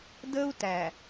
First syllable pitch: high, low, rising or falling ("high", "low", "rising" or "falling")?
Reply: high